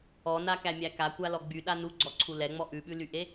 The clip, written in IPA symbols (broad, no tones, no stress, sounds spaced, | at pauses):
ɔ n a k æ mʲ æ k a kʷ a l ɔ ɡ͡b y ɗ a n u ɡ͡ǀ ɔ ǀʰ u l ɛ ŋ͡m ɔ ʔ ʉ ɓ ʉ l y ʔ e